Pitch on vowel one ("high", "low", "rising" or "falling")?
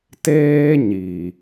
high